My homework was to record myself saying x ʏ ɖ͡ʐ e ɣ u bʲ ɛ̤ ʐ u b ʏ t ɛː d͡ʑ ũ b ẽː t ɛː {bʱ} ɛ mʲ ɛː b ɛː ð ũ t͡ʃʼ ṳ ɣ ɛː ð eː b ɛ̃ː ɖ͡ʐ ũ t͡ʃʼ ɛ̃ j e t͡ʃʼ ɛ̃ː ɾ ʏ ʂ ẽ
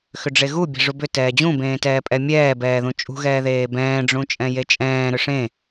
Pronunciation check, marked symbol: incorrect: pʼ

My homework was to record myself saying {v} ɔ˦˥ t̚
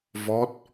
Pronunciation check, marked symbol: correct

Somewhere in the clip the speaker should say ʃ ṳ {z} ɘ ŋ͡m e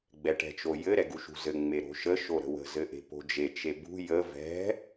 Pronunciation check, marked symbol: correct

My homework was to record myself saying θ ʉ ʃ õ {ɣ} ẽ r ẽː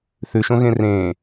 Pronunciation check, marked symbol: correct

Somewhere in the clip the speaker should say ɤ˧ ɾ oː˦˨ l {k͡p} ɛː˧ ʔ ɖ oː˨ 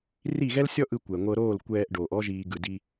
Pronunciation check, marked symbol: incorrect: kʷ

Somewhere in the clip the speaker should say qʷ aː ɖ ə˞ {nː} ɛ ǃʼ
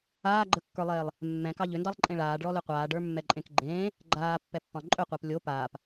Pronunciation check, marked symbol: incorrect: mː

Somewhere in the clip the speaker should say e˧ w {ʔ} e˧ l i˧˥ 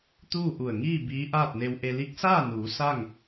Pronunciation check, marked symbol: correct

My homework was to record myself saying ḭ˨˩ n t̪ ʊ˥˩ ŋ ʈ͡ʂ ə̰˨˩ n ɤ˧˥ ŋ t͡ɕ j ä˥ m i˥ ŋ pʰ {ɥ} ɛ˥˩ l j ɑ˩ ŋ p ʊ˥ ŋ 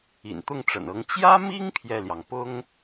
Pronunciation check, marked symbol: incorrect: j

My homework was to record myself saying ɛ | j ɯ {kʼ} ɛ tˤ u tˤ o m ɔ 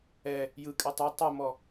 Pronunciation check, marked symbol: correct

